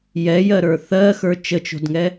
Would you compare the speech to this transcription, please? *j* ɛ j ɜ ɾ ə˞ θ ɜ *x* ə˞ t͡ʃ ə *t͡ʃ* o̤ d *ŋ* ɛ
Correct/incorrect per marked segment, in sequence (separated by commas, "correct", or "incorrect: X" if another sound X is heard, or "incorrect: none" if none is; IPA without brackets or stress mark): correct, correct, correct, correct